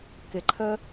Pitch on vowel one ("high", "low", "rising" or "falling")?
low